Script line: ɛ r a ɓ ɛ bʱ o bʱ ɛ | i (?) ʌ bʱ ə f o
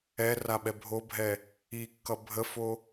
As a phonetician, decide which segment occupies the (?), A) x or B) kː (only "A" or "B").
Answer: B